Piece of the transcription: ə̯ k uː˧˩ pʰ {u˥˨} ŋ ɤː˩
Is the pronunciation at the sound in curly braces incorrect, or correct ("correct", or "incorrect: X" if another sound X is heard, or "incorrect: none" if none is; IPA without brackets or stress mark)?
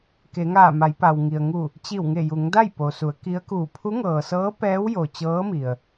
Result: incorrect: u˧˥